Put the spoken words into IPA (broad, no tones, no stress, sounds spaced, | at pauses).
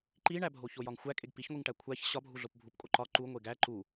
ǃ i ɳ æ bʱ o ç o j ɒ ŋ xʷ æ kʼ e ɡ p i ç ŋʷ i ŋ ʈ æ kʷʰ æ ç ɕ ɒ bʱ u ɮ o p bʱ u p kʼ o ǃ ɒ ǃ u ŋʷ e ɡ æ ǃ u